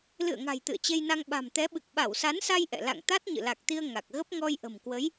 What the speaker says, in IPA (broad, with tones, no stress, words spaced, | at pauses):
lɨ̰˧˨ə̯ŋa̤˨˩j t̪ɨ̰˧˨ə̯t͡ɕe˧jna˧ŋ ɓa̤˨˩mt̪ɛ˨˦ ɓɨ˨˩k̚ ɓa˧˩wsa˨˦nsa˧j ʔɛ̰˧˨ la̰˧˨ŋt̪a˦˥t̚ɲɨ̰˧˨ la˨˩k̚t̪i˧ə̯ ŋa˨˩k̚ ɣə˦˥p̚ŋɔ˧j ʔə̤˨˩mkwə˨˦j